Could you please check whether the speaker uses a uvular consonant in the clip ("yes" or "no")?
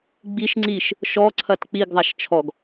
no